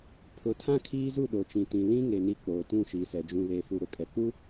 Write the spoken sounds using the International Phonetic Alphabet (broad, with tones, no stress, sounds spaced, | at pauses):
pʰ ʊ˨ tʰ ã˦ kʰ iː˦ z u˦˨ ɗ o˨ t͡ʃ ĩ˨ t ĩ˨ l ĩ˦ ŋ e˨ n i˦ k͡p oː˨ t ũ˦˨ ʃ iː˨ s ɛ˨ d͡ʒ ũ˨ β e˨ f u˨ ɾ ʊ˨ kʼ ɛ˨ k͡p u˦